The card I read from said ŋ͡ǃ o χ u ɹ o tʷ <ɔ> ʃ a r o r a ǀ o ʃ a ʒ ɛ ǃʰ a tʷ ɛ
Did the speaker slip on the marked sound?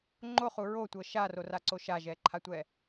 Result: yes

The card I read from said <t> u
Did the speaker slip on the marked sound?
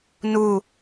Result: yes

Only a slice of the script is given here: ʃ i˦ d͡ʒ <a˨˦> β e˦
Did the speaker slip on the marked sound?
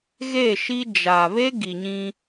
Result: yes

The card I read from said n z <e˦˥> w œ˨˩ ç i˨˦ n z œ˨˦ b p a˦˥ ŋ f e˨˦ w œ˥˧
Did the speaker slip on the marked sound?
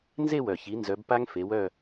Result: yes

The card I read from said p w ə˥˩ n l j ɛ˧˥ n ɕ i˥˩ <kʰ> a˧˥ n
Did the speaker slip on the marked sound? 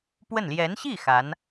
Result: yes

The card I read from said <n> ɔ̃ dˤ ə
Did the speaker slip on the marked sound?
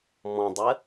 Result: yes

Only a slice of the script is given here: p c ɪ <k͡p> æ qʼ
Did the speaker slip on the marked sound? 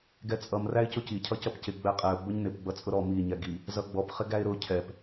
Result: yes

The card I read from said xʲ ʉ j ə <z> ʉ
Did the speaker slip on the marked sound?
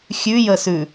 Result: yes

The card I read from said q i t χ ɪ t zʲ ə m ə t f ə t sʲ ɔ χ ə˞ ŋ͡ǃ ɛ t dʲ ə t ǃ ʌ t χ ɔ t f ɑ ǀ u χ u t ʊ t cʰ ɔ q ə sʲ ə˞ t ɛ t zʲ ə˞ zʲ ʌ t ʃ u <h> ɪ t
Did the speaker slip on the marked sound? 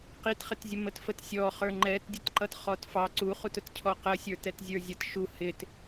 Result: no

